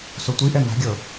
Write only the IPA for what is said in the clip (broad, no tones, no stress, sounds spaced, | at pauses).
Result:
s o tʷ i ʔ ɛ n̪ a̤ ɡʲ ɤ